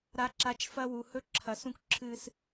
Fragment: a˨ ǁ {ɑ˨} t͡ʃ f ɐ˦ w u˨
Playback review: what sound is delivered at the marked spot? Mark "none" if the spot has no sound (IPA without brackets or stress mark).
a˨